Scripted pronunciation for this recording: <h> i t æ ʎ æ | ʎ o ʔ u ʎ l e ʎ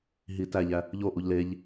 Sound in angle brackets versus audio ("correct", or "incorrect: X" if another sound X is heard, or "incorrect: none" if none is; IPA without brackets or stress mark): incorrect: ɦ